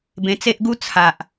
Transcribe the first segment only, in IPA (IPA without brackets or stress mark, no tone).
b